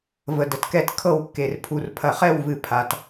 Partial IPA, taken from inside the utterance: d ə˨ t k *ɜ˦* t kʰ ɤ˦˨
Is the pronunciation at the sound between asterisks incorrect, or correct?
incorrect